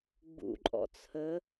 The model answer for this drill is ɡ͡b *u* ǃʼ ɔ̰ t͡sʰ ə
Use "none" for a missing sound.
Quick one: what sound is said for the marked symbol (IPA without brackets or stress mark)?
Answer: ṵ